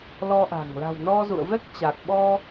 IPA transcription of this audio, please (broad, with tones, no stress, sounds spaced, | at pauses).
l ɔ˧ ʔ a̤˨˩ ŋ l a̤˨˩ w n ɔ˧ z ṵ˧˨ ə̯ v ɛ˦˥ k̚ t͡ɕ a˨˩ k̚ ɓ ɔ˧